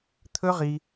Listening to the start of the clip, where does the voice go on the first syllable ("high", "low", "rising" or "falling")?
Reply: high